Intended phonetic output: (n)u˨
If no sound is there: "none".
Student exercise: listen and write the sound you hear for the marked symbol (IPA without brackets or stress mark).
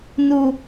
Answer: n